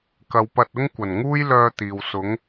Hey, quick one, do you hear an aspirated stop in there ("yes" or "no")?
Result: no